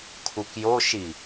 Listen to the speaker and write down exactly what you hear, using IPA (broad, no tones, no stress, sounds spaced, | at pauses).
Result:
kʰ u k j o ʃ i